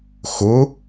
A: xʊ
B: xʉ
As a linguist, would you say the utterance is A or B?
A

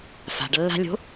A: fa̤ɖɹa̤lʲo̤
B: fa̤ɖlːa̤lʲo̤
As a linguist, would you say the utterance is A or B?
B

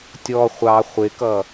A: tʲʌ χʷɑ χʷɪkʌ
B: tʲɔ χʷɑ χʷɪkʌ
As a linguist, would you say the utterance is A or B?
B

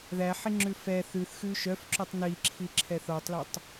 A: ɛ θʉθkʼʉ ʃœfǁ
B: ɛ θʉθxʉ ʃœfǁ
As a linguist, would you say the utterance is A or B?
B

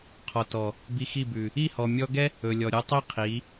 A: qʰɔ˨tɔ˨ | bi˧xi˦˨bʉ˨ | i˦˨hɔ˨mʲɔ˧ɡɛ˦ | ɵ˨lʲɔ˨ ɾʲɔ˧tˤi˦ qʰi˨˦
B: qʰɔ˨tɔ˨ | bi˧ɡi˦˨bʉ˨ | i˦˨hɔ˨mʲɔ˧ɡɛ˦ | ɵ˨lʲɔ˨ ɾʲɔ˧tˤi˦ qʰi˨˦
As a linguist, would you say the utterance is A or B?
A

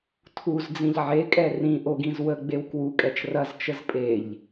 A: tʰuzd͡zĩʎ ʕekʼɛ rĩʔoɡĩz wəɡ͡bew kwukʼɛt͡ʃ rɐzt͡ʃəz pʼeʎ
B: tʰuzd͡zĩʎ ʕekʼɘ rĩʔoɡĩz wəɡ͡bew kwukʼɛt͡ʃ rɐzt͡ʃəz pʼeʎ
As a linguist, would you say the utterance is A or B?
A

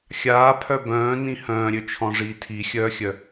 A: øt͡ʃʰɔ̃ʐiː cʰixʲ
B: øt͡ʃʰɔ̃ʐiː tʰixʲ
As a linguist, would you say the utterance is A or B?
B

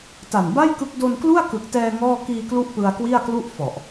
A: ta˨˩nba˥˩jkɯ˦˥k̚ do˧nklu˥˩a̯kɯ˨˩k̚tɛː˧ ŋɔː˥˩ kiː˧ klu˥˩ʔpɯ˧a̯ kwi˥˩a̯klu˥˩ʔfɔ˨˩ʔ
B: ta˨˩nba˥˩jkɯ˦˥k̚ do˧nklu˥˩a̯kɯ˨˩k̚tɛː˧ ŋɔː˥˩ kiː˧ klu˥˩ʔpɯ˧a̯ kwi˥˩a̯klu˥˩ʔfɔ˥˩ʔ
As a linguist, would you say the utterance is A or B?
A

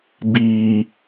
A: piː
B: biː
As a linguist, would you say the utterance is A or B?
B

